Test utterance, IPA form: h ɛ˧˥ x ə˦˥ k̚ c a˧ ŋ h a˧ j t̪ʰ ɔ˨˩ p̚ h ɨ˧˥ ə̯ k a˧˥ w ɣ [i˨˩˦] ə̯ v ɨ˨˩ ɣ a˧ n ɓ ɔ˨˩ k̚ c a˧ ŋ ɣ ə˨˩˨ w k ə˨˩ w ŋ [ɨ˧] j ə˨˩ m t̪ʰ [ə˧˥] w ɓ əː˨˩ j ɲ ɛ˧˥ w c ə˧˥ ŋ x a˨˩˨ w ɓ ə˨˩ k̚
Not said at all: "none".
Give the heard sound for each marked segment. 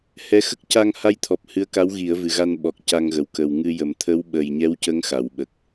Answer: i˨˩˦, ɨ˧, ə˧˥

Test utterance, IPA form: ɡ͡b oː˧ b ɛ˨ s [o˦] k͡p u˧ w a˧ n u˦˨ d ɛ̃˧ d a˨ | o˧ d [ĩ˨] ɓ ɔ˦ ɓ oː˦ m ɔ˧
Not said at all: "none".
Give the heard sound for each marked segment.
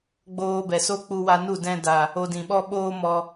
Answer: o˦, ĩ˨

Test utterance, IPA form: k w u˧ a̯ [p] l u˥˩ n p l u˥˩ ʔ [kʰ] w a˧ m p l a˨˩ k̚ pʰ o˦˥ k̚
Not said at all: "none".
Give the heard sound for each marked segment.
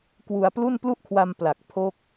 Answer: p, kʰ

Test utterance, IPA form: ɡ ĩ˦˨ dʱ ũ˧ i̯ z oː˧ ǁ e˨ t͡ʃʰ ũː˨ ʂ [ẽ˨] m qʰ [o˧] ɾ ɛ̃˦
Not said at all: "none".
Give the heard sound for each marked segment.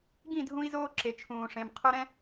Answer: ẽ˨, o˧

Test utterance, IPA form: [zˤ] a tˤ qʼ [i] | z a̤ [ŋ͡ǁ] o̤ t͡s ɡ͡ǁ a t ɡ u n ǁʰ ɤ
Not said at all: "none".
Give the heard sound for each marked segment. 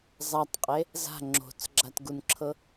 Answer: zˤ, e, ŋ͡ǁ

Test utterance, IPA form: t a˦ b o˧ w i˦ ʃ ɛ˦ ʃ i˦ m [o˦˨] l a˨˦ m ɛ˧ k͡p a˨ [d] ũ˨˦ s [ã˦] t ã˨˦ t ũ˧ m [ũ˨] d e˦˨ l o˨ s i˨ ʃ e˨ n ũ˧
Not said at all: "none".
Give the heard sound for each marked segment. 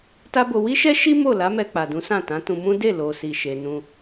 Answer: o˦˨, d, ã˦˨, ũ˦

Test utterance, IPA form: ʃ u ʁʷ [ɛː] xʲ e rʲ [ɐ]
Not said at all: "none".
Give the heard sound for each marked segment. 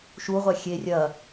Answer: ɛ, ɐ

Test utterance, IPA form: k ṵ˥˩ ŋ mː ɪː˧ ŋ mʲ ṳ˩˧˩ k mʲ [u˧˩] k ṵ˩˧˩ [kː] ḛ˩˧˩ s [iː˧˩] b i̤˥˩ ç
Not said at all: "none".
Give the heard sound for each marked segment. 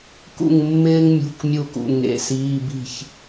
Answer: u˧˩, ŋ, iː˩˧˩

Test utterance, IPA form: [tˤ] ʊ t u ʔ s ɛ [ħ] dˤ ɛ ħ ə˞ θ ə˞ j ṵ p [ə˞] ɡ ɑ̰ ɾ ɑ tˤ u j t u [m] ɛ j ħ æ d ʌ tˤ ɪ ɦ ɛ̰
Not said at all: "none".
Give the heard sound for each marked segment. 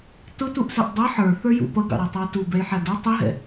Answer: t, ʔ, ʌ, b

